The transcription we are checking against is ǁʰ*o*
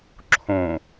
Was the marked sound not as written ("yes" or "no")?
yes